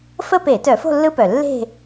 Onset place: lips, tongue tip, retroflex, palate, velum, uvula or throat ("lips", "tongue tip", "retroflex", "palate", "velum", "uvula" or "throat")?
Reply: lips